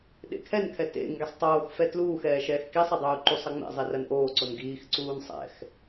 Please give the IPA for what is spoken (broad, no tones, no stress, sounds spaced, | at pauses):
ɗ ḛ kʰ ɛ n kʰ ɛ t ḛ ŋ ɡ i sˤ tˤ oː x f ɛ t l uː x ɛː ʃ ɛː x k i sˤ ɛ dˤ uː ǃ u sˤ ɐ ŋ͡m ḛ zˤ i r ɐ n ʔ oː ǀ o n ɡ iː x ǀ uː n sˤ ɛ̰ x